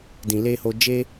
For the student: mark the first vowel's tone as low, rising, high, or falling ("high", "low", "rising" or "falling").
low